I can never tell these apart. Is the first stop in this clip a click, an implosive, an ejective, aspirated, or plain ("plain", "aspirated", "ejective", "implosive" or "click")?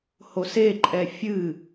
click